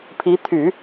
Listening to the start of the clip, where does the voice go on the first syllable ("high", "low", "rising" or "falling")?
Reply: rising